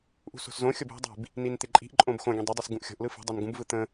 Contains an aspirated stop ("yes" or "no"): no